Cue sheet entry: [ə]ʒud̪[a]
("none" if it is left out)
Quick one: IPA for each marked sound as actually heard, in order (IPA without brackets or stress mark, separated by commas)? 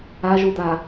a, a